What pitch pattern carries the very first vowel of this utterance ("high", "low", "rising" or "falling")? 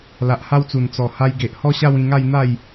low